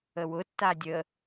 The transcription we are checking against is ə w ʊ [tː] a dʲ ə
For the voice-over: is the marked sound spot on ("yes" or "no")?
yes